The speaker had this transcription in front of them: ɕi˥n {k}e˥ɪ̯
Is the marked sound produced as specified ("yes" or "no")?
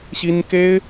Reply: yes